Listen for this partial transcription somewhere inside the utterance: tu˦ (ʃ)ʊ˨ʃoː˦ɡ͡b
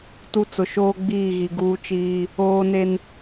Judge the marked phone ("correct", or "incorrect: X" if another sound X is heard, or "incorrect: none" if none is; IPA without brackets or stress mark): incorrect: t͡s